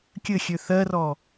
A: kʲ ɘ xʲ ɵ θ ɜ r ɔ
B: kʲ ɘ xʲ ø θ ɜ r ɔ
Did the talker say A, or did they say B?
B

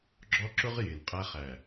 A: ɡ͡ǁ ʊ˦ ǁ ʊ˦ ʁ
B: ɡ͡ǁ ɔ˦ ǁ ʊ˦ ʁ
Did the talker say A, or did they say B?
B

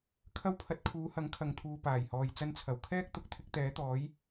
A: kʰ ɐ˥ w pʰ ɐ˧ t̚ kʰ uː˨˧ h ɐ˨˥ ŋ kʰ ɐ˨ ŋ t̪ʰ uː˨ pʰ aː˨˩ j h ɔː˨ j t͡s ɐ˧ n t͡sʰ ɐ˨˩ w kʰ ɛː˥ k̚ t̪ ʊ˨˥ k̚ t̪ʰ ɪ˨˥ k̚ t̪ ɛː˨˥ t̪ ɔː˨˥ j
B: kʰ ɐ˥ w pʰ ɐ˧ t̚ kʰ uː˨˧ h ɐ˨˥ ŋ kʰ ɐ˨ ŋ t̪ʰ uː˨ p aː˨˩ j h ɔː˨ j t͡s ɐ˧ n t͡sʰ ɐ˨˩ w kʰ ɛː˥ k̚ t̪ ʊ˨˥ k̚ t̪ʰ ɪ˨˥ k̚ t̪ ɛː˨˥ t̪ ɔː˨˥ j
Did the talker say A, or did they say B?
B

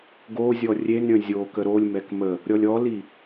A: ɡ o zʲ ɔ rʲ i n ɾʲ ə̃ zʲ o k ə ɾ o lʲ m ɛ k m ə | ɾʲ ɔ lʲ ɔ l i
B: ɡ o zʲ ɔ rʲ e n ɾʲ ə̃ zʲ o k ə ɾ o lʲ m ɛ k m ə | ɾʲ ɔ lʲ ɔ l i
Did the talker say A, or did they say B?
B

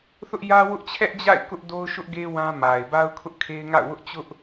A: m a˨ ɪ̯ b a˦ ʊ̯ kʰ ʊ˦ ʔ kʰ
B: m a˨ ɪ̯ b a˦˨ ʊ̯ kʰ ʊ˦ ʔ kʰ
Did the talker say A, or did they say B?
A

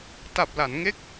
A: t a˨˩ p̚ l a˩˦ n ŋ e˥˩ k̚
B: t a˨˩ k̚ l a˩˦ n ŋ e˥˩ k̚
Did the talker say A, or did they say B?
A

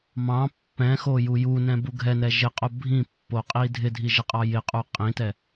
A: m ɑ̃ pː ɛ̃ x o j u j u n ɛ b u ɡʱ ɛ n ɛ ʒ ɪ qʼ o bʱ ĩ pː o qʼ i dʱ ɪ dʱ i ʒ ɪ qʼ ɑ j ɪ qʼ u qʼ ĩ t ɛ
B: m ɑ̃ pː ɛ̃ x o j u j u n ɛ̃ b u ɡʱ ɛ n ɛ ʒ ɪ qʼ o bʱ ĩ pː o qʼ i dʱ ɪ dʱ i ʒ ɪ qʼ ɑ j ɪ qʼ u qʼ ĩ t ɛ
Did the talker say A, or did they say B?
B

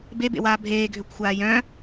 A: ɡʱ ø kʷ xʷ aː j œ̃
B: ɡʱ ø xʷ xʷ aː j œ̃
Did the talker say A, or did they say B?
A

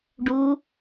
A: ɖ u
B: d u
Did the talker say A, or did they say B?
A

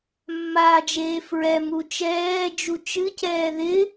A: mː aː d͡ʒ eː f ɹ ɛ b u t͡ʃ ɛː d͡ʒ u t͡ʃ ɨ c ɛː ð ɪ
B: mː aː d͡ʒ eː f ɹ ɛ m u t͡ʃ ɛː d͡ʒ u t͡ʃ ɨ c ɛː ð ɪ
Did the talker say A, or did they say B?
B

